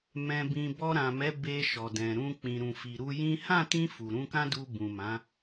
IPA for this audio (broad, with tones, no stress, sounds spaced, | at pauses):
m ɛ̃˧ b ĩ˧ b ɔ˧ ɾ ã˨ m ɛ˨˦ b e˧ ʃ ɔ˨ d ɛ̃˨ ɾ ũ˧ k͡p ĩ˨ ɾ ũ˨ f i˨ ɾ u˧ j ĩ˦ h ã˦˨ t ĩ˧ f u˨ ɾ ũ˧ k ã˦ d u˧ b ũ˨ m ã˨˦